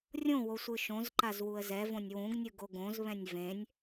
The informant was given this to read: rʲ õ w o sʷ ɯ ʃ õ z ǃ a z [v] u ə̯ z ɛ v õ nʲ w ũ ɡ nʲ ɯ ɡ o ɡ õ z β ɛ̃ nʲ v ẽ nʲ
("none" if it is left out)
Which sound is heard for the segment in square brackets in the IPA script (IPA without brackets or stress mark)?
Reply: w